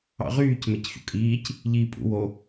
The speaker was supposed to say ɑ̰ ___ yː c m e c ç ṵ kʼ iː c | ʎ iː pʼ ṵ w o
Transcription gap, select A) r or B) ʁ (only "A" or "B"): B